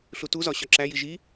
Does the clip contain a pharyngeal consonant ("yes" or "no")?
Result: no